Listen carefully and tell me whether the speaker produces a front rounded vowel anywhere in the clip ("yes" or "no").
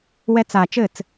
no